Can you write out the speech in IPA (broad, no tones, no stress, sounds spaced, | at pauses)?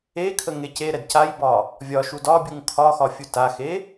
e kʰ ə ŋ e c e ɾ ɛ d c a j b ɒ | vʲ ɒ ʃ u d ɒ bʲ u ŋ kʰ ɒ x ɒ fʲ u t a x e